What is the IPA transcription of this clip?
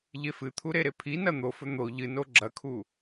ʎ e f ɨ t̪ʰ u ɾ e ɾ e pʰ i n ɐ n̪ o f ɵ n̪ o ʎ ɨ n o ɡ͡ǁ ɐ kʰ u

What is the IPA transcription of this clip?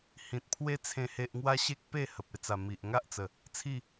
h ĩ˨ t̚ pʰ w e˦ t͡sʰ ẽ˨˩ h e˨ ʔ ŋ w a˧ ɕ e˦ k̚ p e˥˧ h ə˨ p̚ e˧ t͡s a˨˩ m i˨ ʔ ŋ a˦ ʔ t͡s ə˨˩ | t͡sʰ i˥˧

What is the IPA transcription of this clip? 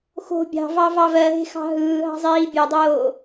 x o̤ bʲ ɑ̤ v ɑ v ɑ v ɜ ɦ e̤ x ɑ̤ ɦ ɯː ɦ ɑ̤ zˤ iː bʲ e dˤ oː

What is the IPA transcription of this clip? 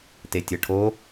t e tʲ ɤ ʈʰ o

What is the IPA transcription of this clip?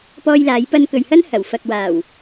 p ɔː˧ j l aː˨˧ j p ɐ˧ n k ɵ˨ ɥ h ɐ˥ n h ɐ˨˩ w f ɐ˨ k̚ w aː˨˩ w

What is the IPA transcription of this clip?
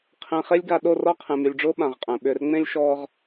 qʰ ẽ˨ χ e˦ lʲ ɡ a˨ ɗ o˦˨ r ɔ˦ qʰ ẽ˨ m y˨ lʲ ɖ͡ʐ ʊː˦ ɓ ã˨ ʁ qʼ ɛ̃˨ ɓ ʏː˨ r ŋ͡m ẽ˦ lʲ ʃ ɔː˦ ʁ

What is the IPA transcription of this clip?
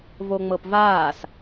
v o ŋ͡m ɤ p v aː s

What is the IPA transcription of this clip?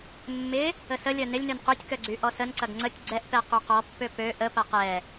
mː ɪ | ə s ə lʲ œ n ɪ lʲ n ø n q ø tʲ k œ ɡ͡ǀ y ʔ ɔ s ə n ǀ ɐ ɡ ŋ͡ǀ ə tʲ ɡ͡ǀ ɛ ʔ p ɛ q y q ɔ pː ø p ø ʔ ə p ɐ q ɛ

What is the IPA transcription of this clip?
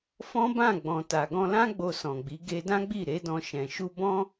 f ɔ̃˦ b ã˦˨ ɡ͡b ɔ̃˨ t a˨ ɡ ɔ̃˧ l ã˦ ɡ͡b o˧ s ɔ̃˨ ɡ͡b i˨˦ ɡ e˧ d ã˦ ɡ͡b i˦˨ ɾ e˨˦ d ɔ̃˧ ʃ ɛ̃˨ ʃ u˧ b ɔ̃˦

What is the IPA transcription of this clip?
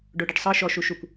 ɖ o ɖ ɯ ɖ sˤ ɤ ʃ ɔ ʃ u ʃ u kʷ

